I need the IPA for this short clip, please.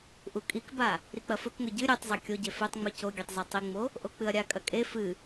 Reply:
ʔ u kʼ i k b a | ɾ i k͡p ɐ f ɵ k ŋ ɵ ɟ ɨ ɾʲ e tˤ zˤ ɐ kʲ o ɟ e f e tˤ ŋ͡m ʉ c o ɡʲ e tˤ z ɐ tˤ i ŋ͡m o | ʔ o k͡p ɨ ɐ̯ ɾʲ a kʼ ɐ kʼ e f ɨ

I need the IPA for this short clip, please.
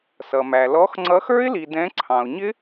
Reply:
s ʌ˩ m æ˩ l ɔ˨˦ x ŋ͡ǀ ʌ˨˦ x ə˞˦˥ ɪ̯ l i˩ d ɛ̃˨˦ ǀʰ ɑ̃˩ ʊ̯ ɲ ɪ˦˥

